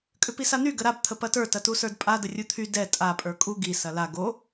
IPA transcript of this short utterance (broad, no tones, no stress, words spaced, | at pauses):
kʼʏpisan̪y ɡəɾab t̪ʰəpɐtə˞ tɐtusə˞dpʼa dərʲut̪ʰy dɛ tʼa pʼə˞kʼu ɡi sɐla ɡo